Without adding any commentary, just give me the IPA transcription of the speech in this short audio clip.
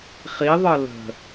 χ i ðˤ ɤ l ə̤

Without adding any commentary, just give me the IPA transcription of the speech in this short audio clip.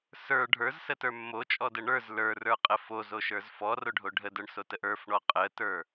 s ə˞ ɖʱ ə˞ z s ə t ə˞ mː o t͡ʃʼ ɔ d ə ɳ ə˞ z l ə˞ r ə˞ qʼ ə f o z o ʃ ə˞ z f ɔ r o ɖʱ o ɖʱ ə d ə˞ ɳ s o t ə ʔ ə˞ f ɳ ɔ qʼ ə t ə˞

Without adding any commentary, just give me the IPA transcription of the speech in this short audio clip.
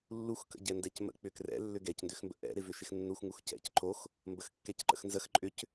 lː u x k ə̰ ɟ ɛ n d ɛ c m ə̰ k͡p ʏ k r ɛ̰ lː ʏ ɡ ɛ c n d ʏ x m b ə̰ ʔ ɛ̰ ɾ ɪ v ʏ ʃ ɪ x nː u x ŋ u x c ɛ̰ c ǃ o x | m b ə x kː ɛ c ǃ ə̰ x n z ə x ǃʼ ʏ c

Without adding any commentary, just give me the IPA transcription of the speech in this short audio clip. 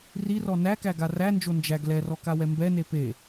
r i r ɔ n æ k æ ɡ a r æ n d͡ʒ o n d͡ʒ æ ɡ l ɛ r ɔ k a w ɛ m b ɛ n e p e

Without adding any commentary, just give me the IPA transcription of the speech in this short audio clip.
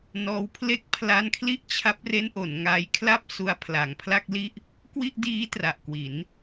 n ɔː˧ w pʰ l e˥˩ k̚ pʰ l a˦˥ n kʰ l i˥˩ ʔ t͡ɕʰ a˦˥ p̚ r e˦˥ n ʔ o˩˦ n ŋ a˧ j kʰ l a˥˩ p̚ s u˧ a̯ pʰ l a˨˩ ŋ pʰ l a˥˩ k̚ l i˥˩ ʔ | k w i˥˩ ʔ d iː˦˥ t r a˨˩ ʔ k w i˩˦ n

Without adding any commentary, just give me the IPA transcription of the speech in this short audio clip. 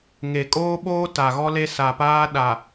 ŋ e˨ kʼ oː˦ ɓ oː˦ t a˨ ɣ ɔ˦ l e˦ s a˨ p aː˦ ɗ a˨

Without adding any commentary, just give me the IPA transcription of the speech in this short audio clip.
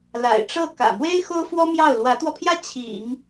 l a̰˨˩ ɪ̯ ʈ͡ʂ ɤ˥˩ k ä̰˨˩ m w e˥ ɪ̯ x o˥ ʊ̯ f w ɔ˥ m j ɑ˥˩ ʊ̯ l w ä˧˥ t̪ w ɔ˧ pʰ j ä˥˩ t͡ɕʰ ḭ˨˩˦ ŋ

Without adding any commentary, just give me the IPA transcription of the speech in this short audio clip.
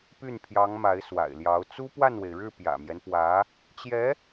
p y˥˩ n pʰ j ɑ˧˥ ŋ m a˧˥ ɪ̯ s w a̰˨˩ ɪ̯ l j ɑ˧˥ ʊ̯ t͡s u˥ p w a˥˩ n w e˩ ɪ̯ ɻ ɻ̩˥˩ p j ä̰˨˩ m j ɛ˦ n p w ä˧˥ | t͡ɕ j ɛ˧˥

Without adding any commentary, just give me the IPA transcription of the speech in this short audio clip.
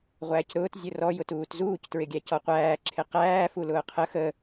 ʁʷ æː c ɾ ʊː t zʲ ʊ r ɔ j ʊ t uː t z uː c t ɹ ɪ ɡʲ æ c ɔ qʷ æː ǁʰ ɪ q æː f u l ʊː qʰ ə x ə

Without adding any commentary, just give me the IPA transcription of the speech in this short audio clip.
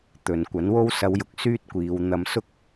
t̪ ɵ˨ n kʷ ɐ˨˥ n w o˥ w s ɐ˧ w j ʊ˨ k̚ s yː˥ t̚ kʷ iː˨˧ w n̪ ɐ˧ m s ʊ˥ k̚

